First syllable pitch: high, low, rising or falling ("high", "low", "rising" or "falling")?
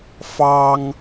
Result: high